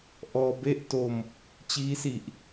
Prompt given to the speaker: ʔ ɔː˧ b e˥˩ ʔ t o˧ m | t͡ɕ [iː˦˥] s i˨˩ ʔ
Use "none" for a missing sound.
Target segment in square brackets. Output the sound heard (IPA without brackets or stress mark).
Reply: iː˦˥